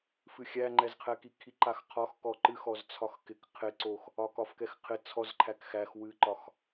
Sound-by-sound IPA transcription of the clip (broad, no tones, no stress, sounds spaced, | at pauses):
f ɨ xʲ æ ŋ͡ǃ ɛ z qʰ ɛ k i kʰ i ǃ a x qʰ ɒ x k ɔ ǃ ɨ x ɔ z t͡sʰ ɒ x k ɪ k qʰ ɪ ǀ o x | ɒ k ɒ f k ɛ x qʰ ɪ t͡sʰ ɔ z ǃʰ æ k x æ x w ɨ ǃ ɒ x